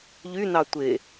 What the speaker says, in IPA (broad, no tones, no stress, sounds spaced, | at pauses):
ʎ y n ɑ tʷ e